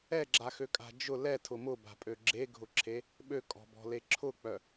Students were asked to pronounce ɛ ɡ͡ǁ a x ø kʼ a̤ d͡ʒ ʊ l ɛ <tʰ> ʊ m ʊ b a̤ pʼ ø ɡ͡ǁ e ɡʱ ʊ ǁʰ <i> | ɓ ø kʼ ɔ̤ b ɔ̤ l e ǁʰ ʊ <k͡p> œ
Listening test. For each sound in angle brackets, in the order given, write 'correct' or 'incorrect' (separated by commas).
correct, incorrect, correct